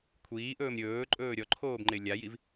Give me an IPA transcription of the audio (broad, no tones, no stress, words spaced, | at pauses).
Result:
kʷʰiːʔɵːm ɾʲɵːǃʼɵː ɾʲɔǃʰoːbŋ͡ǃɪ lʲajiv